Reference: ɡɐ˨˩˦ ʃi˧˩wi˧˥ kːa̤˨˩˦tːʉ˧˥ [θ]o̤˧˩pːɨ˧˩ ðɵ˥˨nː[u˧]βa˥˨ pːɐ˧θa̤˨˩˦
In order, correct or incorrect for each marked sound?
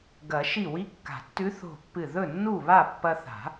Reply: correct, incorrect: u˥˨

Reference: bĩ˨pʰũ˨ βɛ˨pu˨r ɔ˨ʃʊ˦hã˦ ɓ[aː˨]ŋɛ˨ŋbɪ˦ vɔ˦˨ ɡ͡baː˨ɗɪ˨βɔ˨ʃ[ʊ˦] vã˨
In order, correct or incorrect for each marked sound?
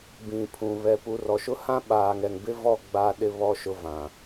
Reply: correct, incorrect: ʊ˨

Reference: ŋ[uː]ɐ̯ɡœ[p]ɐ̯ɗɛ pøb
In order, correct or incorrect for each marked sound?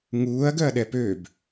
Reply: correct, incorrect: none

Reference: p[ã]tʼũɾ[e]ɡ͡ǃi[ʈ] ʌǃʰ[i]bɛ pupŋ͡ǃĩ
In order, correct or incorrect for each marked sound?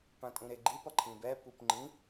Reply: correct, correct, incorrect: p, incorrect: ĩ

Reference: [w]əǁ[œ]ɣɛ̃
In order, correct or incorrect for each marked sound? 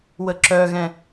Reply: correct, correct

